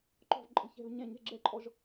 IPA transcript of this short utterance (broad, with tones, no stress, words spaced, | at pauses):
ǃɔ̤˦˨vǃʼə̤˧˥˧çɛ̤˦˨v ɲɛ̃˦˨ɲɛ̤˧˥˧ɡ͡ǁɛ˦˨ǃʼɔ˦˨ʒ